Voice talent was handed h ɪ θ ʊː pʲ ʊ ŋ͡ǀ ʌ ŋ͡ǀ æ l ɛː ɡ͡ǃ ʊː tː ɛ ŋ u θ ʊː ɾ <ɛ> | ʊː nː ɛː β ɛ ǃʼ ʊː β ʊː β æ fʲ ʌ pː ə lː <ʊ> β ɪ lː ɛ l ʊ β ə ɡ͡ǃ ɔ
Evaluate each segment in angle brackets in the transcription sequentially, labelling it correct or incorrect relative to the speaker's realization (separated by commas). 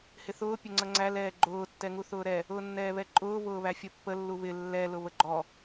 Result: correct, incorrect